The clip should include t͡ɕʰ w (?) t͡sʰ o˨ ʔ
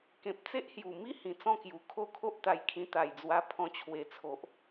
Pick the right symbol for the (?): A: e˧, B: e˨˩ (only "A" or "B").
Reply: A